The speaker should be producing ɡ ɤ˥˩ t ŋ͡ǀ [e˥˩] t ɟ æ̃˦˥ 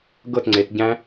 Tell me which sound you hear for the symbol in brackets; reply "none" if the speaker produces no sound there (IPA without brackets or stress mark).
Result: e˩˧